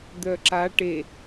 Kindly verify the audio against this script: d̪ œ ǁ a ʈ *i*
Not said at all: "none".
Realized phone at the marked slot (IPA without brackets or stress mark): e